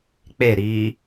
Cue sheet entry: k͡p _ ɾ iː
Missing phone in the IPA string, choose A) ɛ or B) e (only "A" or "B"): B